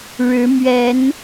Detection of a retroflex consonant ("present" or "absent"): present